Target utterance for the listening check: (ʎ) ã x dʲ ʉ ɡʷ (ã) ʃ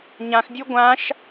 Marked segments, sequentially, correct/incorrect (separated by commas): incorrect, correct